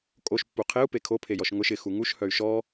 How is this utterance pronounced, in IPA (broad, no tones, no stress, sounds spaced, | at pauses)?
kʼ o ʃ pː u qʰ e u̯ p e kʰ o pʰ e j ɔ ʃ ŋ ʊ ʃ ɪ x u ŋ u ʃ h œ y̯ ʃ ɔ